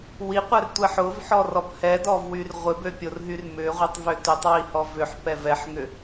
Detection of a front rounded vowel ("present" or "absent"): present